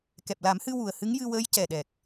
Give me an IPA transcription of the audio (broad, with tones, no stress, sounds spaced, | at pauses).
k ɛ˨˩ p̚ l a˨˩˦ m h ɨ˧ w u˨˩ ə̯ h ɨ˧˥ ŋ j ɨ˧ w əː˧˥ j c ɛ˨˩ ɗ ɛ˨˩ k̚